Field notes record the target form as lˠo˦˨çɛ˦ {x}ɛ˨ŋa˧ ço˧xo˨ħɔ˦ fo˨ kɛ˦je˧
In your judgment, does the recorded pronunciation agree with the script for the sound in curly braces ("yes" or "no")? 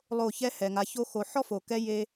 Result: no